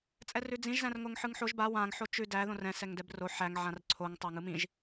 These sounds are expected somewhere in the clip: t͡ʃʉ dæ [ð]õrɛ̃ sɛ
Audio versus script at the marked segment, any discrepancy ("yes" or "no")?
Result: no